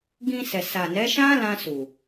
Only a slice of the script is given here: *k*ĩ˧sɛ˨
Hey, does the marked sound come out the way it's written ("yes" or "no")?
no